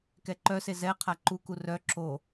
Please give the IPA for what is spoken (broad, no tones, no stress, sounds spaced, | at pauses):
k ɛ ǃ œ s e z ɛ qʰ a ǃ u k u r œ ǁ o